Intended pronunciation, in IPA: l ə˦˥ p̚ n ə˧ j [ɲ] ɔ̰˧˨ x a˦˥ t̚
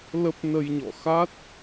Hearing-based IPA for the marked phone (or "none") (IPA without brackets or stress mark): ɲ